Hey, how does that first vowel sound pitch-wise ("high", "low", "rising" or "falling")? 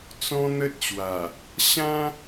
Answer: high